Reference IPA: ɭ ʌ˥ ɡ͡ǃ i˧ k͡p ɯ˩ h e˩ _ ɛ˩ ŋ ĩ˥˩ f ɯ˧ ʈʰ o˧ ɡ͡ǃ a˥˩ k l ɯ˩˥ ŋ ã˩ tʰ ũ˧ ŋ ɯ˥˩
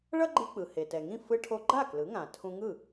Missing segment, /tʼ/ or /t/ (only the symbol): t